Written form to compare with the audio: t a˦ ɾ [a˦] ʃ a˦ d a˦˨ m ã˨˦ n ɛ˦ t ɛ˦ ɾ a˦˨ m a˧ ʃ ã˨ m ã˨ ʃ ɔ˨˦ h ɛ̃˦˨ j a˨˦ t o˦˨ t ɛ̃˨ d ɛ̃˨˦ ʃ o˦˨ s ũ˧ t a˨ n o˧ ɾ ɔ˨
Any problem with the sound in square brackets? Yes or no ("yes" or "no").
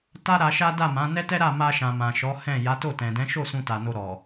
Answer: yes